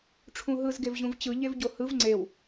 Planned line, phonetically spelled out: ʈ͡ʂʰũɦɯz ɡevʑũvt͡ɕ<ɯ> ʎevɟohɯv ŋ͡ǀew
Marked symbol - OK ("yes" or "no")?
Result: yes